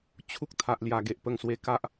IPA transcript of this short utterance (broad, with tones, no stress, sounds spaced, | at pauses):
t͡ɕʰ u˦ k̚ t̪ʰ a˨ ʔ l j a˨˩ ɡ e˨ ʔ p ə˨˩ ŋ s w e˨˩ k a˦ ʔ